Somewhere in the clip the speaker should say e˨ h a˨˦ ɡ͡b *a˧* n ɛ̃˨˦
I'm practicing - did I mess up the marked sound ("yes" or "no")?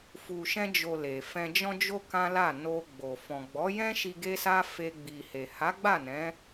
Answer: yes